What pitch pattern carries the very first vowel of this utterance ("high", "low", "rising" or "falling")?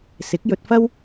rising